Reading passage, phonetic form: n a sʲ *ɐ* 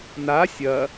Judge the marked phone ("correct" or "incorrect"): correct